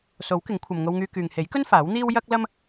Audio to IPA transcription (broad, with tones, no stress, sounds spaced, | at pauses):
s o˨˥ w k ɪ˨˥ ŋ kʷʰ ɐ˨ m ŋ o˧ w ŋ yː˧ k yː˨ ŋ h e˨˥ j k ɵ˥ n f aː˨˥ w n̪ iː˥ w j ɐ˥ k̚ l ɐ˥ m